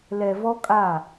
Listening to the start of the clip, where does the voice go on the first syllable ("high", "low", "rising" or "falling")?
low